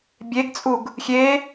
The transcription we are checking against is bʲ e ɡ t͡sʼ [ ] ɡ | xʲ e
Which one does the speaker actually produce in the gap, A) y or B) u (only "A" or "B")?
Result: B